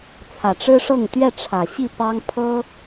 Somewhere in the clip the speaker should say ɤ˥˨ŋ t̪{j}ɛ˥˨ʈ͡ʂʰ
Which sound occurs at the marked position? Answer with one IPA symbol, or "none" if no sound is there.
ɥ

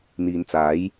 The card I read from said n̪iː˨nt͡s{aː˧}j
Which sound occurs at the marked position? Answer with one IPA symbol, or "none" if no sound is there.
aː˨˥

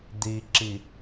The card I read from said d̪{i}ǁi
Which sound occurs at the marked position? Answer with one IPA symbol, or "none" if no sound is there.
i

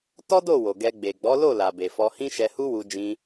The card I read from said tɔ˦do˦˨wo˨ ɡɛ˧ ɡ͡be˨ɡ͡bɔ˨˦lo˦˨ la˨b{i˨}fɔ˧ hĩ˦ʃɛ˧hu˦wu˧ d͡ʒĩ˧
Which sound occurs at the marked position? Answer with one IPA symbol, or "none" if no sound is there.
e˨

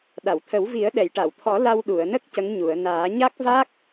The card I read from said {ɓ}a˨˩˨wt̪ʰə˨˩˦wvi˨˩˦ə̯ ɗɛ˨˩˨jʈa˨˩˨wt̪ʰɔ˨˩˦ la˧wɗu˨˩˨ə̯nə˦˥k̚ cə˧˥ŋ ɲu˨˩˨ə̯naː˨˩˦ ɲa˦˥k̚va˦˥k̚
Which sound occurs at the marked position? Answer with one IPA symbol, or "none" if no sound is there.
ɗ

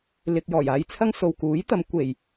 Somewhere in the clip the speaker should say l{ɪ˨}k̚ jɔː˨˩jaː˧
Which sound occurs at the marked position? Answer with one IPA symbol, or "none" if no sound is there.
ɪ˧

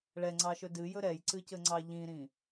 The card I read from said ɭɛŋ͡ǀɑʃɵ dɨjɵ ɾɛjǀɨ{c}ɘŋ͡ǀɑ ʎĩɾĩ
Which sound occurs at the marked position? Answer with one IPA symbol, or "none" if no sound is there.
c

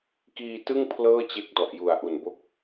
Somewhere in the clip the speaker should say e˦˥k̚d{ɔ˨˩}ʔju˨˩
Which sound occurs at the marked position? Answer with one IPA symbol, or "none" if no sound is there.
ɔ˨˩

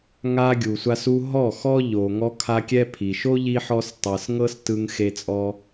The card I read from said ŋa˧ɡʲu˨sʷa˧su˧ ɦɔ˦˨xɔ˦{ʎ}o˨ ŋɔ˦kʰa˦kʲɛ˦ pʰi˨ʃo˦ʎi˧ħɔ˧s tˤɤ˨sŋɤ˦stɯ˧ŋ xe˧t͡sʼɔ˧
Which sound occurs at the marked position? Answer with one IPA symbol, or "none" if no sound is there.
ʎ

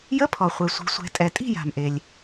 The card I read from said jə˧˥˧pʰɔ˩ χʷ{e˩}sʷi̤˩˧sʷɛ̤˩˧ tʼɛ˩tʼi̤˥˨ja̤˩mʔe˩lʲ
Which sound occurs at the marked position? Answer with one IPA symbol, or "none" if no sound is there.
e˩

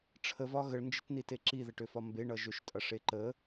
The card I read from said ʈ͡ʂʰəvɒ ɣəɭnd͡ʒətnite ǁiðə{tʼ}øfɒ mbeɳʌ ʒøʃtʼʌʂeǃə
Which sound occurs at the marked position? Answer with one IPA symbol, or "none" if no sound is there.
ʈ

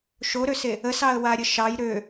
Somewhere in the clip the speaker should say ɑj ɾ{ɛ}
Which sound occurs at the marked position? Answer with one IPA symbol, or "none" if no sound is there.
ø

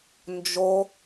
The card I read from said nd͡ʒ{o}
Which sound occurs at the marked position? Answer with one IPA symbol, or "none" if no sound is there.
o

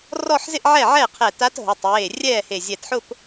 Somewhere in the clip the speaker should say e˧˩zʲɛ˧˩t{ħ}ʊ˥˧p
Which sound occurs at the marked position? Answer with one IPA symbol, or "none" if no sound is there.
ħ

